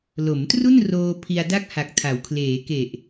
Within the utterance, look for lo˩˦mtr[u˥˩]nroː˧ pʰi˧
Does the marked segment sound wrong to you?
no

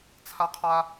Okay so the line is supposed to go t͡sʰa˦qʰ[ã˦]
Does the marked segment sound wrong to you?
yes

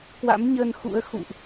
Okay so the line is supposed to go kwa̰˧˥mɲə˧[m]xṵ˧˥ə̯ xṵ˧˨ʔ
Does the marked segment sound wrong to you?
yes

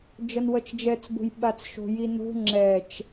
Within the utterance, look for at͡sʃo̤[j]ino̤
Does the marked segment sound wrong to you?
no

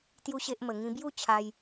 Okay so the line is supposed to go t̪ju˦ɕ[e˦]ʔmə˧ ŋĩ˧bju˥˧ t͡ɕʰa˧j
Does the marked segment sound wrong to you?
no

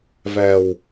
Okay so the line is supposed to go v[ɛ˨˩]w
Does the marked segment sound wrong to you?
no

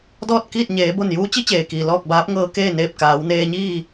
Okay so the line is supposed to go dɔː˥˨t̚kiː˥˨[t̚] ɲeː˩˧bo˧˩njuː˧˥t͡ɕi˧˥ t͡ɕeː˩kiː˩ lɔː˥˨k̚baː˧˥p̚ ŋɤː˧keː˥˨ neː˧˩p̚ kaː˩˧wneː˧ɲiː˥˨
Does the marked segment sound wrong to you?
no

